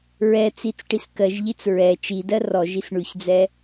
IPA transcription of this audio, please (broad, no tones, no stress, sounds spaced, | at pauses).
ɹ ɛ t͡s i t͡s ʈ i s k ɜ ʒ ʎ i t͡s ɹ ɛ t͡ʃ i d ɜ r ɔ ʒ i s ɳ ʉ ç d͡z ɛ